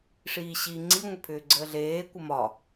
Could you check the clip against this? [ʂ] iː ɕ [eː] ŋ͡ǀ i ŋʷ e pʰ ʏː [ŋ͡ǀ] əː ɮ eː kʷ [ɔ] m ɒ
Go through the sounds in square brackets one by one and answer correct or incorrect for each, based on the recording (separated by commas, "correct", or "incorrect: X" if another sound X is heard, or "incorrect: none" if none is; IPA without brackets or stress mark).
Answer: correct, incorrect: iː, incorrect: ɡ͡ǀ, incorrect: ə